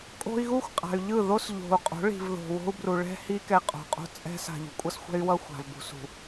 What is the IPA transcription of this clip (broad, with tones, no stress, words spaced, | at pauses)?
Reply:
kʼo̤˦i̯ ɣu˦xʷqʼa̤˨y̯ʎɯ˦˨ ðo˦sʎo̤˨u̯qʼo̤˨˦ ɭi̤˨vðo̤˨wo̤˦u̯bru˨ ɭɛ̤˦hi˦ kɛ˦ qʼo̤˨qʼo̤˦t͡sʼɛ̤˦ sa̤˨ʎṳ˨kʷʼʌ˦sxʷɛ̤˦y̯ wʌ˦xʷa̤˨v bṳ˨sṳ˨